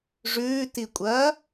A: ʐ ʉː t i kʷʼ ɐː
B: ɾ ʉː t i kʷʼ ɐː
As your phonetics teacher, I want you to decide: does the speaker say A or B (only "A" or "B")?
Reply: A